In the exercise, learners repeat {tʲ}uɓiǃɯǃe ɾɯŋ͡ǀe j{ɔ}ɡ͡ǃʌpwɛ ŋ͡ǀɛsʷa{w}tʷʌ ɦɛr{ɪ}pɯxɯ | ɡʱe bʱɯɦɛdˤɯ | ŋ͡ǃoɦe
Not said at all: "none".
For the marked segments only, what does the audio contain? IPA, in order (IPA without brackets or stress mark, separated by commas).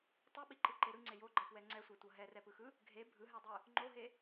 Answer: tˤ, o, none, ɛ